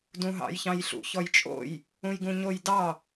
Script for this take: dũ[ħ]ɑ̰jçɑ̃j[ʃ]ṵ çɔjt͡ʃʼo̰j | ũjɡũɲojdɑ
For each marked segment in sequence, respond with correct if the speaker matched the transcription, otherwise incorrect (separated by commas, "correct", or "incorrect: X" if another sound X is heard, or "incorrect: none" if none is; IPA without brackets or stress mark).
incorrect: ɦ, incorrect: ɬ